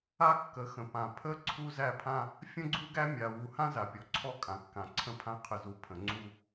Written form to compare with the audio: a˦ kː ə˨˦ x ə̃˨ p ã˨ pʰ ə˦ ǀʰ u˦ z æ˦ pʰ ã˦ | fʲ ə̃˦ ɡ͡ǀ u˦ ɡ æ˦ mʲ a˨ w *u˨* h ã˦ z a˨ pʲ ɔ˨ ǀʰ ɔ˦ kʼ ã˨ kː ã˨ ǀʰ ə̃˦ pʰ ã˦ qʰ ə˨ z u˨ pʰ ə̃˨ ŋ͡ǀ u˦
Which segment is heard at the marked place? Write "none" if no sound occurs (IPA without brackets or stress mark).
u˨